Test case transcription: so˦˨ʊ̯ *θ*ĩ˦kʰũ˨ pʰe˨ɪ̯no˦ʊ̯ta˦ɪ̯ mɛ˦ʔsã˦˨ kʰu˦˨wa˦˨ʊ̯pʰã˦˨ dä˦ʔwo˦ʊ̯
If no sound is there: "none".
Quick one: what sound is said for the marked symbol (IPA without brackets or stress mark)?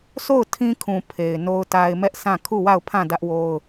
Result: tʰ